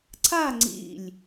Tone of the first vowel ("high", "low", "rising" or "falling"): falling